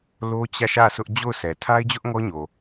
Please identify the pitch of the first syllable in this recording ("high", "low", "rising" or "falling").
high